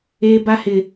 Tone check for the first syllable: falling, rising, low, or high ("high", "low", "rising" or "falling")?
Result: high